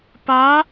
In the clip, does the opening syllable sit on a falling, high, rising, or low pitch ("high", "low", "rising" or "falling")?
rising